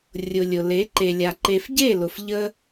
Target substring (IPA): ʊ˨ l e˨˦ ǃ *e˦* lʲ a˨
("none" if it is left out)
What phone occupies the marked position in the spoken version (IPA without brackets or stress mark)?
e˨